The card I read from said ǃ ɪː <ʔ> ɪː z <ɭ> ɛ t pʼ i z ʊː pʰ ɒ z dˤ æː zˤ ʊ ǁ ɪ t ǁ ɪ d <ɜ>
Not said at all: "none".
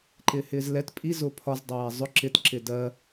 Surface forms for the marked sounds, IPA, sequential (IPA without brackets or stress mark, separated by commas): h, l, ɜ